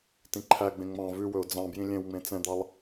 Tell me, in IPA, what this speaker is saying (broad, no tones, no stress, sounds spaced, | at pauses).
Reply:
t ĩ ǃʰ æ ɡ͡b ẽ ŋ͡m ɑ̃ v ʉ w ɵ ʊ̯ d͡z ɑ̃ b j ĩ lʲ ẽ w ŋ͡m ẽ t͡s ɛ̃ d̪ ɑ lˠ